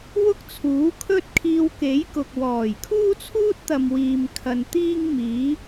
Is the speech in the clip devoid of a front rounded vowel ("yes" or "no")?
yes